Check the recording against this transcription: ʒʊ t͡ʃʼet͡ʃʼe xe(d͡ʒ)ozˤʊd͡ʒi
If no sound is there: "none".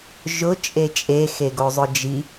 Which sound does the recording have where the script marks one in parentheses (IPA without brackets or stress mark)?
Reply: ɡ